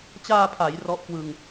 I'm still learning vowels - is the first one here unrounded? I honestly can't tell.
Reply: yes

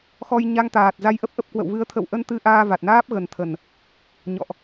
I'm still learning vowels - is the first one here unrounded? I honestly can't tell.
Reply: no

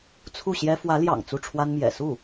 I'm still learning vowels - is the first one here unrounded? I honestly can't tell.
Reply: no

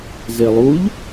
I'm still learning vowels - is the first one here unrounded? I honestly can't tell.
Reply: yes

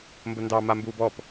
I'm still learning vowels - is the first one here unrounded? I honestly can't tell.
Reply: yes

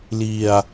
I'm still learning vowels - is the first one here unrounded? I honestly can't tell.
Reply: yes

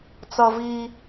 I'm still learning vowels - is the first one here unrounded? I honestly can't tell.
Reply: yes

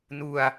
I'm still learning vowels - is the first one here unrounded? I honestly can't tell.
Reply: no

